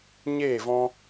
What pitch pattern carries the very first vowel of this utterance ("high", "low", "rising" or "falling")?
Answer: falling